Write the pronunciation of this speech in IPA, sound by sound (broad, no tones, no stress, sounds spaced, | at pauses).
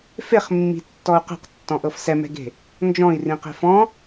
f e χ mː i̤ tː ɔ u̯ q ɛ̤ q tː ɔ̃ ʔ ɤ f s ɛ m ɛ̤ ɡ e̤ | n d͡ʒ ɔ̃ i̯ r ĩ q e̤ f ɔ̃